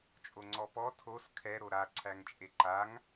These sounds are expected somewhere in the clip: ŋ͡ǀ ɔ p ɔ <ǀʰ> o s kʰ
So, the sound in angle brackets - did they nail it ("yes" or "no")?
no